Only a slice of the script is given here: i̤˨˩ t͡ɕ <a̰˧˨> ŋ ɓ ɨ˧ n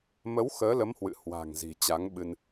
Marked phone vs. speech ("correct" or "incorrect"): incorrect